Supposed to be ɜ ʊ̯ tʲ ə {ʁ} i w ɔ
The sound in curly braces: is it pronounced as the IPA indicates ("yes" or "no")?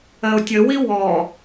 no